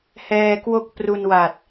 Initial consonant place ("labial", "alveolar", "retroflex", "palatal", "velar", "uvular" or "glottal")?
glottal